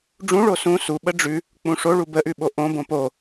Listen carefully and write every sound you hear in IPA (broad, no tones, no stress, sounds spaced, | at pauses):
ɖ͡ʐ ũ ɭ o s ũ s u ɓ ə ɖ͡ʐ ʉ | k͡p ũ ʂ o ɭ u b ə ʔ ʉ ɓ o ʔ õ b õ p o